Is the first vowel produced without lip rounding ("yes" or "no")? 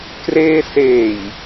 yes